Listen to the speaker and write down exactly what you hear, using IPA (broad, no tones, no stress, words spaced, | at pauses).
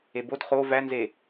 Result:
ebod χo vænze